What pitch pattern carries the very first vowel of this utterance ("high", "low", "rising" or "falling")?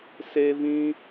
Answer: high